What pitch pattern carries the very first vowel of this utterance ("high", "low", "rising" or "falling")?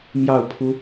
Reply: falling